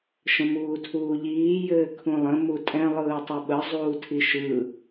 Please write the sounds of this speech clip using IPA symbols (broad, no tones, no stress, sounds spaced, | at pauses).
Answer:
ʃ ə̃ m uː tʰ uː ʎ iː j ɘː kʰ ũ lˠ ə̃ m u tʼ ɛ̃ lˠ ɯː tˤ ɘ ɓ ə zˤ uː tʰ i ʃ ɯ